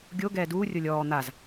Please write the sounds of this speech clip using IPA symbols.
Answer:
ɡʲ o ɡ ɛː d uː rʲ o lʲ ɔː n̪ a z

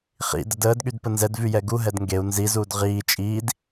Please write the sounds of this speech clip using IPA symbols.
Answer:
χ ḭ d ə d əː d ɠ y d p ə n z ɛ d v y j ɛ ɡ u ɦ ɛ d ŋ ɡ e u̯ n z i z uː d ʁ iː t͡ʃʼ iː d

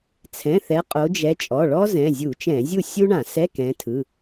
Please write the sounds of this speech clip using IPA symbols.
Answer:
t͡sʰ ɛ̃˩˧˩ θ ɛ˨˦ qʼ o˨˦ d͡ʒ ɛ˨˦ t͡ʃʼ ɔ˩˧˩ ɭ ɔ˥ z ɛ̃˩˧˩ zʲ u˧˩˧ t͡ʃ ɛ̃˧˩˧ zʲ u˥˩ sʲ u˥ ɳ ã˧˩˧ s ɛ˧˥˧ k ɛ̃˨˦ tʰ ɯ˩˧˩

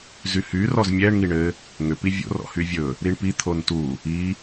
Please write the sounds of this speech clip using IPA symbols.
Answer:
z y h y r ɔ z mʲ ɛ ɳ ŋ i ɳ ɘ | ŋ ʏ p i vʲ o̰ r ɔ̰ h y vʲ ɵ | ɾ i ɳ p i t̪ʰ o n t u | i

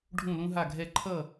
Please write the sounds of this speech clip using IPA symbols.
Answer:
ɖʱ ũ˥˧ l ũ˥ ɦ a˥˧ ɡʱ ɛ˥˧ ǃʰ ʌ˥˧

